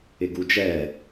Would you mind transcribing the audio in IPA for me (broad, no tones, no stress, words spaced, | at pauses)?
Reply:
ɪɡud͡ʒɛ